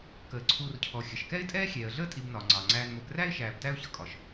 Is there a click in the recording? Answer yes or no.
yes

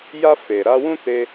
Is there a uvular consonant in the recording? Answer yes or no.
no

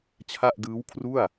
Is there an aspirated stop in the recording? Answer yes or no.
yes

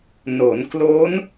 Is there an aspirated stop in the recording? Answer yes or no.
no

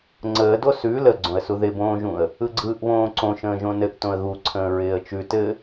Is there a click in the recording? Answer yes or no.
yes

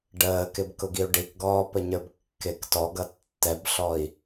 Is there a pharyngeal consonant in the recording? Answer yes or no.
no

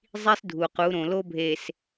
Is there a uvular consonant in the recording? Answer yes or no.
yes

